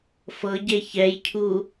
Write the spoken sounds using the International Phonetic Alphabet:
f ɤ ɟ e ç ɛ j cʰ u

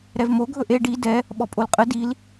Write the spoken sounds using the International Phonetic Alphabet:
ɾ ɛ v m o ɡʱ ɵ ʔ e ɖ i d ɛ | ɓ ɔ pʼ o l qʼ ə d i l

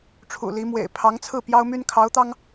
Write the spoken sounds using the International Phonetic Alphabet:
ʈ͡ʂʰ ṵ˨˩ l i˧˥ m w ḛ˨˩ ɪ̯ pʰ ɑ˧˥ ŋ t͡sʰ ɹ̩˥˩ p j ɑ˥ ʊ̯ m y˥ n kʰ ɑ˧˥ ʊ̯ t̪ ɑ˥ ŋ

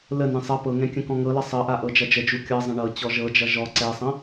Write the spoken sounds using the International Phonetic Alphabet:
l ə n ɛ̃ sˤ ʌ p ɤ ŋ ɛ̃ kʲ ə̃ k ɔ̃ ŋ ɤ l ʌ sˤ ɤ ʔ a ʔ ɤ d͡ʒ ʌ d͡ʒ ə d͡ʒ u kʲ ɤ zˤ ə̃ ɳ ɤ t͡ɕ ɔ ʒ ɤ d͡ʒ ʌ ʒ ɔ ǀ ɛ sˤ ə̃

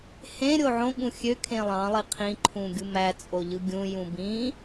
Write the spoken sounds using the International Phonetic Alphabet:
h ẽ ɾʲ o ʕ õ ɠ ũ xʲ ø kʰ ẽ lˠ ɑ̃ lˠ i qʰ ĩ ǃʰ ũ ɡʲ u m æ t͡sʼ o ʎ ɯ ɡʲ ũ j ũ b ĩ

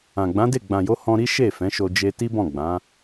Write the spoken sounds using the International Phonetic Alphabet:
ã˨ ɡ͡b ã˨˦ d e˦˨ ɡ͡b ã˨ j o˧ h ɔ̃˧ ɾ i˦ ʃ e˦˨ f ɛ̃˨˦ ʃ o˧ d͡ʒ e˧ t i˦ b ɔ̃˦˨ ɡ͡b ã˨˦

